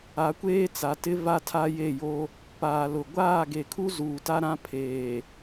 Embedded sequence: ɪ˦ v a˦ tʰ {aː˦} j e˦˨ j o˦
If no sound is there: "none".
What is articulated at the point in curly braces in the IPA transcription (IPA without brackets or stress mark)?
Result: a˦